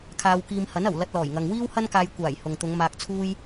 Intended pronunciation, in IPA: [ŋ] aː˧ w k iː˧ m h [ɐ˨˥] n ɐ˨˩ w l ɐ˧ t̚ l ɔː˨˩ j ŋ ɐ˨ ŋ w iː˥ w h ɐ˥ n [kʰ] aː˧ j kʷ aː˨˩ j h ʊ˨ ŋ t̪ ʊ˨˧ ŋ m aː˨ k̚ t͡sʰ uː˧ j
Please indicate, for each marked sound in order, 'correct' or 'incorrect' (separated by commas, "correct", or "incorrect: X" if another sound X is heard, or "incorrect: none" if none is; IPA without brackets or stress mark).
incorrect: kʰ, correct, incorrect: k